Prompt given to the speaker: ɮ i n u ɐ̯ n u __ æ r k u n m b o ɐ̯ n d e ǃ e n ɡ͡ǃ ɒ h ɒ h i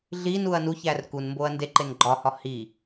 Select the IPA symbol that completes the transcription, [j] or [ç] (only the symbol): ç